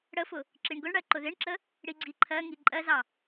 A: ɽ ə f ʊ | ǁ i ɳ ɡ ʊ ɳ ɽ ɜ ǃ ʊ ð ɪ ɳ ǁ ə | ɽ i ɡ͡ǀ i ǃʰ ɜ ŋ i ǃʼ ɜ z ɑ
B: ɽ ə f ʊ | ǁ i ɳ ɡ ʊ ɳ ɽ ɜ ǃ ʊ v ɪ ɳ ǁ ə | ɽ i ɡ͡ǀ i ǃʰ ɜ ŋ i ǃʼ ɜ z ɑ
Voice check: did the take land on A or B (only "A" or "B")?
A